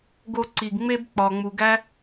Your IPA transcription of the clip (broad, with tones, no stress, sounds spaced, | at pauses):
ɡ o˧ ǀ i˨ ɡ ŋ͡m e˦ b k͡p ɒ˨ ŋ͡m u˨ ɡ æ˦